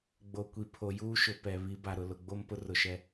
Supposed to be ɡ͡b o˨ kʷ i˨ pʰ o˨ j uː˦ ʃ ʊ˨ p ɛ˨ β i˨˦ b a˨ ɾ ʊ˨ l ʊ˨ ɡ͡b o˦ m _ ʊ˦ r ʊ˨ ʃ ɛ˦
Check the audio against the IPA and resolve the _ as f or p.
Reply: p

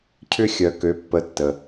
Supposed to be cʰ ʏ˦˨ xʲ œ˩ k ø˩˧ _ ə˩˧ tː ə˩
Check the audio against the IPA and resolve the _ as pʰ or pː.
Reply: pː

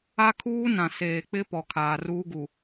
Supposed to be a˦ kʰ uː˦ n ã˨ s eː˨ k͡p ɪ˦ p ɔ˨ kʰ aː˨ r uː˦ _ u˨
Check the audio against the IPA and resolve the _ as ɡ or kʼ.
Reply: ɡ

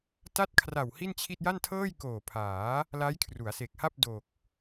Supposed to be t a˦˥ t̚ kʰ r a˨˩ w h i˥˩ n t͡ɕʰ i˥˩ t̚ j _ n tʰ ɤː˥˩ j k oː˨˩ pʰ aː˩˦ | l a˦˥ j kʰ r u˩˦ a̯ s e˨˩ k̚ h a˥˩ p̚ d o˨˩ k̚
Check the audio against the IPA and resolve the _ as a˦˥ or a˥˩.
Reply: a˥˩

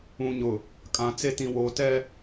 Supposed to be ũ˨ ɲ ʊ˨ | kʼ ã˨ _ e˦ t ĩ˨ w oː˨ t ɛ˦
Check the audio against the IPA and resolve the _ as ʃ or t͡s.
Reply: t͡s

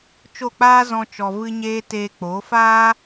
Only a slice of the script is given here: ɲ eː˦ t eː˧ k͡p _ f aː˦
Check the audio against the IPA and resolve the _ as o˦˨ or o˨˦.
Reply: o˨˦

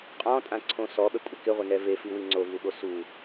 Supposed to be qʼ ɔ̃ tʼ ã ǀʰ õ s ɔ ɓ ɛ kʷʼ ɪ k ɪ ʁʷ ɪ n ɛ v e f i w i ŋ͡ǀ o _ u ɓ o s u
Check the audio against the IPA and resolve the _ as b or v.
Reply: v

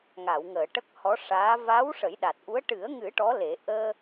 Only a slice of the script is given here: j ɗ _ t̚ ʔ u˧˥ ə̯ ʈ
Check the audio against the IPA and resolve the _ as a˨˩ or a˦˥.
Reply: a˨˩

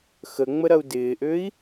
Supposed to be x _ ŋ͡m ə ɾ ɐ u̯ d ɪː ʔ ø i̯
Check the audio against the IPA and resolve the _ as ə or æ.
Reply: ə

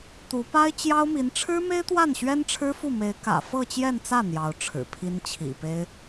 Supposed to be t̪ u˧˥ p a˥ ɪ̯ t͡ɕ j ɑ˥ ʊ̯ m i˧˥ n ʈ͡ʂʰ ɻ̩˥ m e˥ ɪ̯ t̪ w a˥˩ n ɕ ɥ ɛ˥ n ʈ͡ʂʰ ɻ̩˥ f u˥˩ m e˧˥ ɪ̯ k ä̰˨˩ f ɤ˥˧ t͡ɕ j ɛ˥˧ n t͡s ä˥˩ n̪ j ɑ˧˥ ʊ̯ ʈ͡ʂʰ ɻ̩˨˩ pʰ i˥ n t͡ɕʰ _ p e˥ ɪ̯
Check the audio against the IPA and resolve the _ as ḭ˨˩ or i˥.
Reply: ḭ˨˩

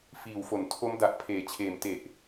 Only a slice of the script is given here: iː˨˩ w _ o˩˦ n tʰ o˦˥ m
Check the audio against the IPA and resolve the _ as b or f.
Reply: f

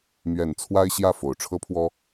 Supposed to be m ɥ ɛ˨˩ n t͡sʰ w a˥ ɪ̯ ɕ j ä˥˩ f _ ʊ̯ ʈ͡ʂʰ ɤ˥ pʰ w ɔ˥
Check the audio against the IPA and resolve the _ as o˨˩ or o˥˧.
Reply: o˨˩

